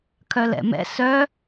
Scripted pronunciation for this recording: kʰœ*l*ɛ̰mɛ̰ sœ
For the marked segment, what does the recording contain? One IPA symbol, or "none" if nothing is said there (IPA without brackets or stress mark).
l